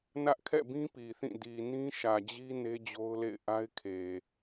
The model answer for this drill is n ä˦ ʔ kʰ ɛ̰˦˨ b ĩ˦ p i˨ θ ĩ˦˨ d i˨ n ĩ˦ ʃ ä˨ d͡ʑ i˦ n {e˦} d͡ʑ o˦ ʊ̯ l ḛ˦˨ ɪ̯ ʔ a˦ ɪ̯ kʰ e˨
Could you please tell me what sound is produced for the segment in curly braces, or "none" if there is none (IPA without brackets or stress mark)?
e˦